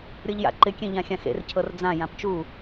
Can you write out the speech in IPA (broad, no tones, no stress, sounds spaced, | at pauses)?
ɾʲ ɤ ʎ j a̰ ǃ ɪ kʲ ẽ ʎ ã xʲ ã x ḛ r cʰ ɤ r d͡z ã j ã p t͡ʃ u